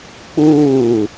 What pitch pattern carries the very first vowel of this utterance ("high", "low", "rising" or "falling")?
falling